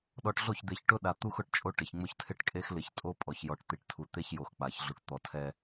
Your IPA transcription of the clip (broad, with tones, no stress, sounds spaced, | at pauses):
ɗ ɔ˨ ʈ ɮ o˦˨ ç d̪ e˨ ç ʈ ʊ˦ ɗ a˨ t̪ u˦ x ʊ˨ ʈ t͡ʃʼ o˦ ʈ ɪ˨ ç ŋ͡m ʊ˦ ç tʰ ɪ˦ ʈ kʼ e˦ x l ɪ˨ ç tʼ o˦ pʼ ɔ˨ ç j ɔ˨ ʈ t̪ i˨ ʈ tʰ u˨ t̪ e˦ ç j o˨ x k͡p a˨ ç ɮ u˨ ʈ t̪ ɔ˨ tʰ ɛ˦